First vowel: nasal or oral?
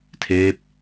oral